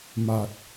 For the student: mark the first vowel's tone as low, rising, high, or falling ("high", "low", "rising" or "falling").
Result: low